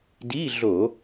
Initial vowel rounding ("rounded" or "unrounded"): unrounded